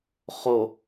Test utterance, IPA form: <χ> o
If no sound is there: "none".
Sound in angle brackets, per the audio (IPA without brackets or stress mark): χ